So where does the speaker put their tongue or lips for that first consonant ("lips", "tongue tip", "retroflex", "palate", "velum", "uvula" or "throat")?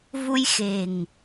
lips